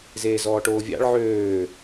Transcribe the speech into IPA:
z eː z ɔː ʈ oː vʲ ɑ̰ ɭ ʕ øː

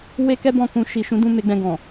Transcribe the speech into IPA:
w e˦ k ɛ˦ b ɔ̃˦˨ k ũ˧ ʃ i˨ ʃ ũ˨˦ d ũ˦˨ m e˨˦ ɡ͡b ɛ̃˧ ɡ ɔ̃˨

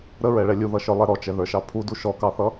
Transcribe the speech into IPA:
ɾ ə ɹ ɛ ɭ ɛ lʲ u ð ʌ ʃ ə˞ lˠ ɛ ɾ ɔ t͡ʃ ɛ ð ə˞ ʃ ɑ pʰ u d u ʃ ɔ k ɑ θ ʌ

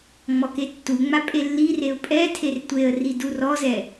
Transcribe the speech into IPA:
ŋ͡m ɔ k e tː u ŋ͡m a pʼ e lː i r e ʊ̯ pʼ ɛ tʰ e r tʷ e ə̯ r i d u r ɔ z ɛ

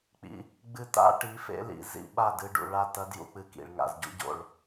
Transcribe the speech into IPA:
k͡p ḭ˧ | ɡ͡b ɨ˧ t a̰˦ ʈ i˨˦ f ḛ˦ l ḭ˨ z ḭ˦ ɓ a˦˨ d ɨ˧ ɖ ṵ˨ ɭ a˦˨ t ɐ˦ d j ṵ˧ k͡p ɨ˧ k ḭ˨ ɭ ŋ a̰˨ z ɟ ṵ˦ ɟ o̰˦˨ ɭ

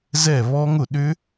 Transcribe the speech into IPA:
z ɛ˥˩ β ɔ˦˥ ŋ ʊ˥˩ ɗ ʏ˦˥

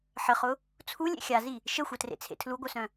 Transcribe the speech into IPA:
ħ ə χ ʊ | t͡sʰ u lʲ ḛ xʲ a z i | ʃ ə xʷ ɛ t r ḛ t͡sʰ ḛ tʰ l u ɡʷ œ s œ̃

